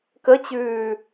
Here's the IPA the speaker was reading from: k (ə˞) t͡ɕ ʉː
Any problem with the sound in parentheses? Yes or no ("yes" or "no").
yes